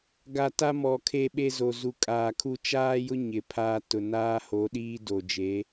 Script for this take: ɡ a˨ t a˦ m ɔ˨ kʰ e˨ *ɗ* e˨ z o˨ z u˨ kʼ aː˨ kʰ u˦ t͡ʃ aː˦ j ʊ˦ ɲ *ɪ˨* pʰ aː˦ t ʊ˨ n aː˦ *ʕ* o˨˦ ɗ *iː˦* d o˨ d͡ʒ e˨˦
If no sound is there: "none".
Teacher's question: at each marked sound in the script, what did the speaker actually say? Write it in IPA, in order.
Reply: ɓ, ɪ˨, h, iː˦

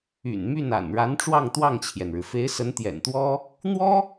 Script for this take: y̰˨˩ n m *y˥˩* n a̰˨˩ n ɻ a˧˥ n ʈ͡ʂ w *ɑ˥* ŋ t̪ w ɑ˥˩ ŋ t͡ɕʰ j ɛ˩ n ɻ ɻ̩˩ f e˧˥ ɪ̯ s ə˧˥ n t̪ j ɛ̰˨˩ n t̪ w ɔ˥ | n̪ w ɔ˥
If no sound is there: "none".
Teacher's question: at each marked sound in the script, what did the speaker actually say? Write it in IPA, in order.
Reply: y˥˩, ɑ˥˧

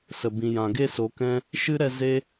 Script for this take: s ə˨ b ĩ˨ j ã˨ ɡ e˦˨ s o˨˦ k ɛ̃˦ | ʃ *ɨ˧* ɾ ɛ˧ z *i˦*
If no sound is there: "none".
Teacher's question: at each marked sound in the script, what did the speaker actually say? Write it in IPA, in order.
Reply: ɨ˦, e˦

